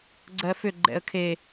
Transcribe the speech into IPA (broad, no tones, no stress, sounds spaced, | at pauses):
ɡ͡ǀ ɜ f ʏ ɡ͡ǃ ɛ̰ ə̯ kʰ e